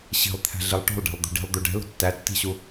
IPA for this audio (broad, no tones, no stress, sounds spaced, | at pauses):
ɕ i̤ lˠ t̪ʰ æ̤ ɮ i lˠ ʈ o̤ lˠ ɖ æ̤ lˠ d̪ o̤ ɖ i̤ lˠ d̪ u ɖ ɛ̤ l o̤ tː æ tː i̤ ɕ u